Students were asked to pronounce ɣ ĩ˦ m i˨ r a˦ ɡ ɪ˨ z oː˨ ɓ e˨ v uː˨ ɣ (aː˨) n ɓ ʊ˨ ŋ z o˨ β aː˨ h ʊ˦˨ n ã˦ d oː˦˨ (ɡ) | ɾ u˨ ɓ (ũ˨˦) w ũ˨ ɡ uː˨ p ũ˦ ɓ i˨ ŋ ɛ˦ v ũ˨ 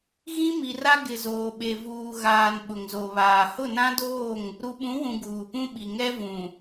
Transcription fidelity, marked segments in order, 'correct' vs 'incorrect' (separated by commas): correct, incorrect, correct